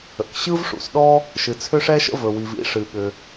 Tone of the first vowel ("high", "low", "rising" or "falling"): low